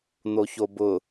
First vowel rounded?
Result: yes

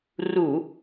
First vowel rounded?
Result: yes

